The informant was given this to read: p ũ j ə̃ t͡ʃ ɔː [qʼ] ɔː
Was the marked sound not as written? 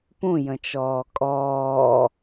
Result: yes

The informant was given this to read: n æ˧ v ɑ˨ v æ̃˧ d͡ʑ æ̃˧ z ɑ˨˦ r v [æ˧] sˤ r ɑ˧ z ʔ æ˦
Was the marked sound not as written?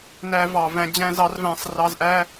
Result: yes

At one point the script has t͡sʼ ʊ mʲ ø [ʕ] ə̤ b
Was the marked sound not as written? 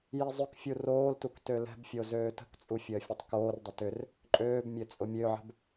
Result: no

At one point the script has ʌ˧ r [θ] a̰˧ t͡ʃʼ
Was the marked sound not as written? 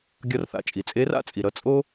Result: no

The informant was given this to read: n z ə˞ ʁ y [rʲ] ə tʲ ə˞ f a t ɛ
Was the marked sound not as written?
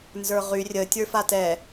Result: no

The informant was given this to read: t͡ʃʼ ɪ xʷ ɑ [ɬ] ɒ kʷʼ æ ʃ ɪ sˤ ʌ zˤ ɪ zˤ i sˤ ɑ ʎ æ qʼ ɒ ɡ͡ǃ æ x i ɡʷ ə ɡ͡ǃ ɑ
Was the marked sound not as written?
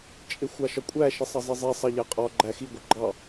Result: yes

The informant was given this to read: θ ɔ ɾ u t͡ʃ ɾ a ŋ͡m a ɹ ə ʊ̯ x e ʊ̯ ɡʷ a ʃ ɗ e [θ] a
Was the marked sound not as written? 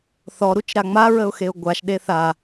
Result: no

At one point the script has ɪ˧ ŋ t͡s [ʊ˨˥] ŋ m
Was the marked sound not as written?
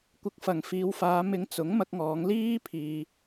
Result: no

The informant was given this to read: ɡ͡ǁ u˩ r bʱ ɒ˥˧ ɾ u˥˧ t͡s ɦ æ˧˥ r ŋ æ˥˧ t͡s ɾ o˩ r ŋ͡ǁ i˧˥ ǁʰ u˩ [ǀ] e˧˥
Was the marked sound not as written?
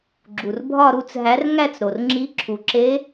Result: yes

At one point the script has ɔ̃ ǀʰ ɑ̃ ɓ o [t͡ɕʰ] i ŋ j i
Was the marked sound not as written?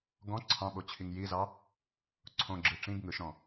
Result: no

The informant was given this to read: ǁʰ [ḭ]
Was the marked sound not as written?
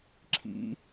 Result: no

